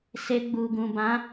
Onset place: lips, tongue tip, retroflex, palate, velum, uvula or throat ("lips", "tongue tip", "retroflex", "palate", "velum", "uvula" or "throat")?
tongue tip